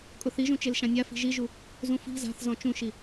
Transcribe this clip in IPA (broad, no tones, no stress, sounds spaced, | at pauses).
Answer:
kʼ ʊ θ i ʒ ũ t͡ʃ e l ʃ ã nʲ a f i̤ ʒ i ʒ u | z ũ f i̤ z a̤ θ z ɔ̃ t͡ʃ ũ ʃ i